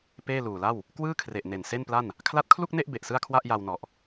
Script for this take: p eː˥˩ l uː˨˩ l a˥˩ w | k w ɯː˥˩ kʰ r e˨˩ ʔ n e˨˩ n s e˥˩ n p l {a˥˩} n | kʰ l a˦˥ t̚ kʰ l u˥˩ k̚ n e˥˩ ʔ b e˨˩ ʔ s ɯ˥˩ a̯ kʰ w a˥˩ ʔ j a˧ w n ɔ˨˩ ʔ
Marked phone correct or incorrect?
correct